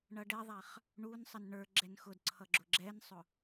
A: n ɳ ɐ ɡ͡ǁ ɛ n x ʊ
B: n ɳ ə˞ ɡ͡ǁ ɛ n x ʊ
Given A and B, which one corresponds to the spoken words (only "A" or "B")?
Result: B